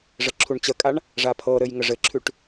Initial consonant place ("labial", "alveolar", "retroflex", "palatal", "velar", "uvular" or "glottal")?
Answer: retroflex